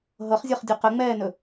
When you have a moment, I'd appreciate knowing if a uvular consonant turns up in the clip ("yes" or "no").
yes